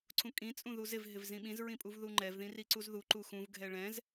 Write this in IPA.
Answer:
ǀʰ ũ kʼ ĩ t͡sʼ ũ ð u z ɪ v ɦ ɪ v z ĩ ɓ ĩ z ɹ ĩ pʼ u v ð u ŋ͡ǃ ɛ v ð ĩ r i ǀ u z ð u ǃ u x ũ v ɡʱ ɛ ɭ ɛ̃ z

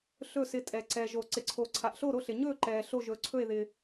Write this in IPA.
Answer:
ɬ ɵː˥˨ s ɪ˥˨ tʼ ɛ˩ ǀ ɛ˩ ʒ o˩ ǀ ɪ˩ ǀʰ o˩ ǀʰ a˩ ʔ ɬ o˥˨ ɾ o˥˨ ɬ ɪ˩ ɲ ɵː˥˨ ǃ ɛː˩ ɬ o˥˨ ʒ ɵː˩ ǀʰ ɵ˥˨ e̯ ð ɪ˩

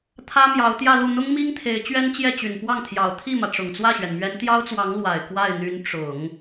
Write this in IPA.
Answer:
t̪ʰ ä˥ m j ɑ˧˥ ʊ̯ t̪ j ä˥˧ l u˥˩ n̪ ʊ˥ ŋ m i˥ ŋ t̪ʰ e˧˥ ɪ̯ t͡ɕ ɥ ɛ˥ n t͡ɕ j ɛ˥˩ t͡ɕ y˨˩ n p w ɑ˥˩ ŋ t̪ʰ j ɑ˨˩ ʊ̯ t̪ʰ i˥˩ m ä˩ ʈ͡ʂ ʊ˨˩ ŋ t͡s w ä˥˩ ɕ ɥ ɛ˩ n m ɥ ɛ˧˥ n t̪ j ɑ˥ ʊ̯ t͡s w ɑ˧˥ ŋ l w a˨˩ ɪ̯ k w a˥˩ ɪ̯ n̪ y˧˥ n ʈ͡ʂ ʊ˨˩˦ ŋ

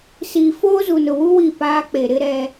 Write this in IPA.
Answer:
s iː˨ f oː˦ z u˨ n ʊ˨ w u˦ w i˦˨ p aː˦ k͡p e˨ ɾ ɪ˦ ɾ ɛ˦

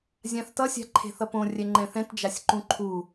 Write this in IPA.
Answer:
zʲ ã θ t ʌ sʲ a̤ ǃʰ e̤ θ ʌ p õ rʲ ɛ ŋ͡ǃ ɛ̃ θ ɛ̃ t d͡ʒ a sʲ ǃ ũ ǃʰ u

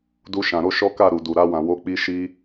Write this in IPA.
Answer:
d u˧ ʃ ã˨ ɾ o˧ ʃ ɔ˦ k a˦˨ ɾ u˨ d u˨ ɾ a˧ w ã˨ w o˨˦ k͡p i˧ ʃ i˧

